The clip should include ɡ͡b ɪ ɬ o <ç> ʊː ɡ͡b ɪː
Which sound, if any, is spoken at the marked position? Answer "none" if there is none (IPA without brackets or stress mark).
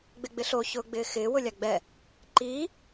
ç